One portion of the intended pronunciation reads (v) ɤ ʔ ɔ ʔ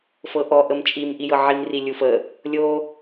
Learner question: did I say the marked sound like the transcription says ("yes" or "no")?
no